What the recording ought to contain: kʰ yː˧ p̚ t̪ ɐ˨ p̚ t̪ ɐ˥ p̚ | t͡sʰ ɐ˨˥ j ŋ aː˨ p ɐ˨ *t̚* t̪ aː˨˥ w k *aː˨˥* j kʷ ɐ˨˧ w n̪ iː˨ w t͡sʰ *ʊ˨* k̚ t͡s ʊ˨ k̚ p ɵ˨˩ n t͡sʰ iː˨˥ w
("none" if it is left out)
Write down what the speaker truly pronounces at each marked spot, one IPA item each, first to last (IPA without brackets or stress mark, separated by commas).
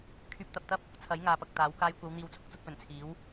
k̚, aː˧, ʊ˧